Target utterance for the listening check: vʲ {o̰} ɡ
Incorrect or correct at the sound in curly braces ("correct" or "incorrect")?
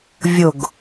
incorrect